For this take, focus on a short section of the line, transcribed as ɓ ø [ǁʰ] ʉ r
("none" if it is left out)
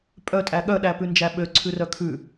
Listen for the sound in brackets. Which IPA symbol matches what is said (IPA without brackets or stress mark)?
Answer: ǀʰ